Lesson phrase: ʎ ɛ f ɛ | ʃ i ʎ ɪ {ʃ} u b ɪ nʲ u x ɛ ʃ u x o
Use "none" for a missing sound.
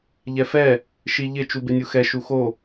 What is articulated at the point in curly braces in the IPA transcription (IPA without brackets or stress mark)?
t͡ʃ